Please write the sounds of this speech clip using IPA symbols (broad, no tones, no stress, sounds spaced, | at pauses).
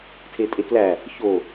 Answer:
tʰ e tʼ e k l æ | ç o